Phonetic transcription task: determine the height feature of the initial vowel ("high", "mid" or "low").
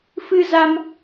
high